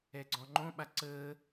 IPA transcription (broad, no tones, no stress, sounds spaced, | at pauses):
ɛ ɡ͡ǀ ɔ̃ ŋ͡ǃ õ ɓ a ǀ əː